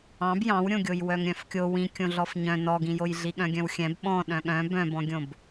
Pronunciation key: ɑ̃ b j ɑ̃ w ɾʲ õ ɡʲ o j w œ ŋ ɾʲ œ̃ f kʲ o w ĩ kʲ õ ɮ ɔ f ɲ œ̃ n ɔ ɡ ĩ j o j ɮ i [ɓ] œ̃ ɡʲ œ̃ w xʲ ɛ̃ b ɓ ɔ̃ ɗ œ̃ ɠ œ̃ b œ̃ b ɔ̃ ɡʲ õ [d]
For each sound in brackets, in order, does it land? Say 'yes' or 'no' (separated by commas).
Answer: no, no